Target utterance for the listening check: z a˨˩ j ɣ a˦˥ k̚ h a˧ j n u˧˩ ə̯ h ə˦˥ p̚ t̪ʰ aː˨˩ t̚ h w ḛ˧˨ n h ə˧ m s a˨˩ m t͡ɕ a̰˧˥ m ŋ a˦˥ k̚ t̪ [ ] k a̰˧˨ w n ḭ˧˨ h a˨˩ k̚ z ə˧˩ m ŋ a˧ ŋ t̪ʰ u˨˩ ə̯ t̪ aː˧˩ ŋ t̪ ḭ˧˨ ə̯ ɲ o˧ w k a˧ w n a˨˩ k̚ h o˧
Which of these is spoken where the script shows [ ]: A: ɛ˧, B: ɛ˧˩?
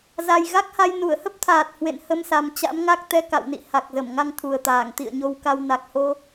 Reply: A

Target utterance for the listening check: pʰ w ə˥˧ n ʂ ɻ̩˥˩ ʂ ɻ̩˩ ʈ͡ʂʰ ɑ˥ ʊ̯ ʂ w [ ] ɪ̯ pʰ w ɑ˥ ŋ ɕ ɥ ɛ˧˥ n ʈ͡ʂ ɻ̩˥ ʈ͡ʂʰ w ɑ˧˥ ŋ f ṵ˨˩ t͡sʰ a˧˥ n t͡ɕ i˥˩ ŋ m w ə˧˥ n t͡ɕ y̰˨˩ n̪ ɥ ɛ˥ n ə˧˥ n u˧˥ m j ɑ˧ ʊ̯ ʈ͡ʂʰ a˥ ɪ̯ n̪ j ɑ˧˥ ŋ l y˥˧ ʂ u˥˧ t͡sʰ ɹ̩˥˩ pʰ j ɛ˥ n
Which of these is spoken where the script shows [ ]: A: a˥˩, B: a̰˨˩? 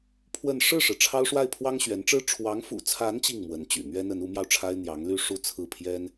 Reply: A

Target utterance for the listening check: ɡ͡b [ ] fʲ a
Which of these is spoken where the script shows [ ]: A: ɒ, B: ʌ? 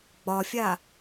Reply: A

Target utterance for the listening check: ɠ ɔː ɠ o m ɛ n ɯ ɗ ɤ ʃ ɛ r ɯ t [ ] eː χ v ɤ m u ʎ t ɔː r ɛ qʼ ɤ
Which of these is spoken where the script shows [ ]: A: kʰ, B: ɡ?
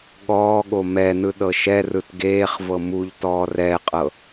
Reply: B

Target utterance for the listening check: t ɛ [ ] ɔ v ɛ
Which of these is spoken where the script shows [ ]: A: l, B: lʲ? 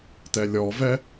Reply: B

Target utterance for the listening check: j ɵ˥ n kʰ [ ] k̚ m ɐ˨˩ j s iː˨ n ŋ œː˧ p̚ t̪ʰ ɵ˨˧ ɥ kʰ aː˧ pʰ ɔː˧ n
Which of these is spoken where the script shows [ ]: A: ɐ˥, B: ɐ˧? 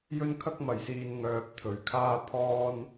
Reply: A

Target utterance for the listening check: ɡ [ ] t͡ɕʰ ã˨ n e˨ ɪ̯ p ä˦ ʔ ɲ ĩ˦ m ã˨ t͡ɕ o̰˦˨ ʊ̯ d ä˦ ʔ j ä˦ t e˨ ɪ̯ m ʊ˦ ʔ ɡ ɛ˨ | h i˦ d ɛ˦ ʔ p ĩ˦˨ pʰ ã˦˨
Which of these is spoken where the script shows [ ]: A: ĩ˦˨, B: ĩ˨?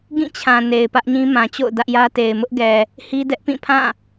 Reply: A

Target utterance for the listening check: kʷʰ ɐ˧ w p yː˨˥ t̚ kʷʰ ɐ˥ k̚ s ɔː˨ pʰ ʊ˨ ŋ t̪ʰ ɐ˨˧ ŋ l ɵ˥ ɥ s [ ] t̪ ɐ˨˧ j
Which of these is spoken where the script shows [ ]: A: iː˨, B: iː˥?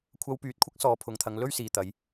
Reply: A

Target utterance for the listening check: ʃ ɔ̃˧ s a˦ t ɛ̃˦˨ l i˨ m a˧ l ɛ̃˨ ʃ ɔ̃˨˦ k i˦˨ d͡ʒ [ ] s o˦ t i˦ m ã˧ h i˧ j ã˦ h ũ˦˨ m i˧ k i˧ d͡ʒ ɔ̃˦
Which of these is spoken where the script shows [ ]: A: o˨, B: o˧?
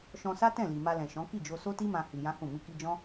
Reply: B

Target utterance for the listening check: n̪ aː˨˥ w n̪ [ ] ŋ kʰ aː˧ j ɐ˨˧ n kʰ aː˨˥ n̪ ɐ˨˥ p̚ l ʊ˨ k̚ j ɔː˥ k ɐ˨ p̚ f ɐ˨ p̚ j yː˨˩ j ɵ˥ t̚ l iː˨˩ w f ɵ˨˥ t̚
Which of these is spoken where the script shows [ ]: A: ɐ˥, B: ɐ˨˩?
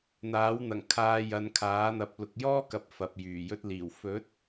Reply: B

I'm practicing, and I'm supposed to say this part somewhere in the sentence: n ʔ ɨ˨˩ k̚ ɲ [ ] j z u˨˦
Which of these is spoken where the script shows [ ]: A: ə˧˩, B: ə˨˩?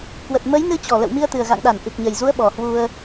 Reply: B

